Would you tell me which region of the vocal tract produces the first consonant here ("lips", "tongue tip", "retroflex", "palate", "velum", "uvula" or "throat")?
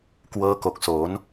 velum